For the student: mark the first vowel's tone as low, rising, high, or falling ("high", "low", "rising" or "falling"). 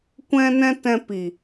high